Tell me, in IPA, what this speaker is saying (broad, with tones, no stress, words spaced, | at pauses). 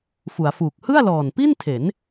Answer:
fu˩˦a̯fuː˨˩k̚ hɯ˥˩a̯lɔː˨˩npi˥˩ntʰe˩˦n